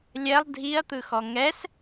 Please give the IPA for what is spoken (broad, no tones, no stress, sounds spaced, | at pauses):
lʲ ɛ lˠ dʱ i ɐ̯ t̪ ɯ x ɔ ŋ ɛ s